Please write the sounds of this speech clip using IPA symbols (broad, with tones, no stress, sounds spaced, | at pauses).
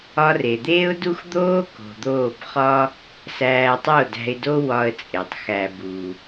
ɒ˧ r e˨ d̪ eː˦ ʊ̯ d u˦ x d̪ oː˦ k o̤˨ d̪ oː˦˨ b χ ɒ˦ | s æː˧ tˤ o˦˨ d æ̤˧ ɪ̯ d o˦ w ɒ˦ ə̯ t͡sʼ e˨ tˤ x æ˧ b u˨